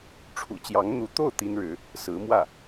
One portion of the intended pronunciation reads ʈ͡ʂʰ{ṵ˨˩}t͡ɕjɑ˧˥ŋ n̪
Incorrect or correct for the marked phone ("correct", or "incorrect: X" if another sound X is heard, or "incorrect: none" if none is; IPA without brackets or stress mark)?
correct